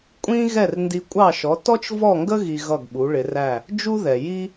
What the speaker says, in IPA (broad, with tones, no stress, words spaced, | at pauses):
kʷʼĩ˥ ɣɛ˥˩rndi˧kʷʼɑ˥˩ʃɔ˩˥ tɔ˥t͡ʃvɔ˥˩ŋɡə˥ ɣi˧ ɣʌ˥˩ɡɓu˩˥ɭɪ˩˥ræ˥˩ | d͡ʒu˥ðɛ˩ ji˥